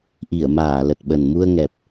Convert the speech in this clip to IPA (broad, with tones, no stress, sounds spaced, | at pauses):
ʔ i˧˩ ə̯ m aː˧˩ l ə˨˩ t̚ ɓ ə˨˩ n m u˧ ə̯ ŋ ɛ˨˩ p̚